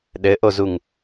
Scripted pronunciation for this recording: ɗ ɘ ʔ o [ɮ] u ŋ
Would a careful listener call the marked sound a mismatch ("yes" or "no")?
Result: yes